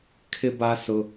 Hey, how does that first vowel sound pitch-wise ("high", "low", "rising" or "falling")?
high